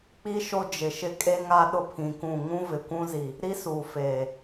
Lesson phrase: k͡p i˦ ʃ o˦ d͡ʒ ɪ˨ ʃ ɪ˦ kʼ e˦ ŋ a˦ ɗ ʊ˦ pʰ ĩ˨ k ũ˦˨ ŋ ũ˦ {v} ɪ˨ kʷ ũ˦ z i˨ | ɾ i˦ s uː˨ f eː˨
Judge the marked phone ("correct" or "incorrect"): correct